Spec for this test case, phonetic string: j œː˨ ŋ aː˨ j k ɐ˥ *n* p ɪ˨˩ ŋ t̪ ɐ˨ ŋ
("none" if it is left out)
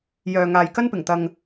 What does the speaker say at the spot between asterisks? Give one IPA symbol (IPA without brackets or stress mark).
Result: n